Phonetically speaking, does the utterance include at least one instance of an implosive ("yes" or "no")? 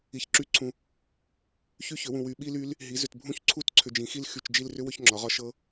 yes